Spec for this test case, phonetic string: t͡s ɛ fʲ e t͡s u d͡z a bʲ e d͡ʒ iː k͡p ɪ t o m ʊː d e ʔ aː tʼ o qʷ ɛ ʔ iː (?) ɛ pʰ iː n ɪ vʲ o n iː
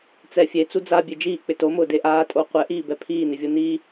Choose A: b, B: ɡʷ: A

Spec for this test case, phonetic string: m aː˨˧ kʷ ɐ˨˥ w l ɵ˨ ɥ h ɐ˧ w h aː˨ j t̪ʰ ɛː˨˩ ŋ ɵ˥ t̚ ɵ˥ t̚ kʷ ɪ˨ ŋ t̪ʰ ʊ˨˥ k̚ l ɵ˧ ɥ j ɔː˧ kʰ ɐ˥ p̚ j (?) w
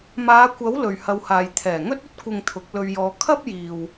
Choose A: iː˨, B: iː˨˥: A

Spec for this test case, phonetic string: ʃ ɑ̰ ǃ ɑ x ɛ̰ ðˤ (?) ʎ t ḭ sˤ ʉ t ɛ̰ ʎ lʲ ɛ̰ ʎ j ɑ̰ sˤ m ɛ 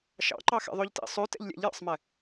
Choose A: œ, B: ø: B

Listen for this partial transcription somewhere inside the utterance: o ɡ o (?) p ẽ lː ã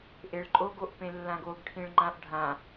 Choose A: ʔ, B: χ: A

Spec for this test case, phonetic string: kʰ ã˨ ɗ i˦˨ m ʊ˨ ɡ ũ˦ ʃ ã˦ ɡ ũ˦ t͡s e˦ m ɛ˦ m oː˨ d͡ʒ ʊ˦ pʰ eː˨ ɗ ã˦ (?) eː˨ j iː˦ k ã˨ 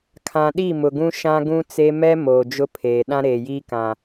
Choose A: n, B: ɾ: B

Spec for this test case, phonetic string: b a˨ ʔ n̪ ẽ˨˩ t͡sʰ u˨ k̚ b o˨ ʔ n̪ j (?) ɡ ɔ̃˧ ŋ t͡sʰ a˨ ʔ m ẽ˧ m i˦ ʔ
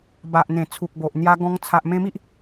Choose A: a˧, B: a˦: A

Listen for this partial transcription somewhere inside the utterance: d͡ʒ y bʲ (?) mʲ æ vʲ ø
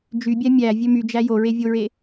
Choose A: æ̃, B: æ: B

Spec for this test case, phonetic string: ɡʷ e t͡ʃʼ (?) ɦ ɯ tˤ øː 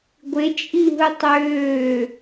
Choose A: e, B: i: B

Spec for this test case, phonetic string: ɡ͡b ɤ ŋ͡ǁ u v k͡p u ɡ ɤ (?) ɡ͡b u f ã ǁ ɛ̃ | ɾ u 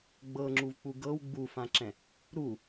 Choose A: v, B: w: B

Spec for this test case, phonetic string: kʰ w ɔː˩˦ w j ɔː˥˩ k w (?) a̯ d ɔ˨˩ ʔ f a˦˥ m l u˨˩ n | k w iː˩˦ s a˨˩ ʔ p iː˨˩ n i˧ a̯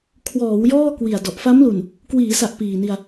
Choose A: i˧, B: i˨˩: B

